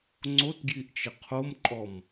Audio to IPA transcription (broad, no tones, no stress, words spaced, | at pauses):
ŋ͡ǀotɡjiʔt͡ʃɪ qʰomǃʼɔm